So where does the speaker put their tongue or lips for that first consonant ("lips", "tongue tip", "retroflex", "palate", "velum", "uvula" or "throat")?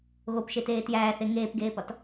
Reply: velum